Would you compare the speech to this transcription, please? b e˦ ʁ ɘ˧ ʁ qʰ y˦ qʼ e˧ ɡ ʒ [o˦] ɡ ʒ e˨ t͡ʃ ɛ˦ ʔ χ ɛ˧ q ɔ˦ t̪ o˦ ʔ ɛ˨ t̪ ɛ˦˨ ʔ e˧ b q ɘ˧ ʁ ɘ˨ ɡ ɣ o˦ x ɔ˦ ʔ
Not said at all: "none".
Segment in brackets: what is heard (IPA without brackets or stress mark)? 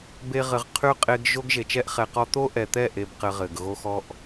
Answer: o˦